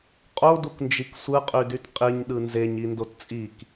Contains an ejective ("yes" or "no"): yes